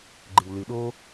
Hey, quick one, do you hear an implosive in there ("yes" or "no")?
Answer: yes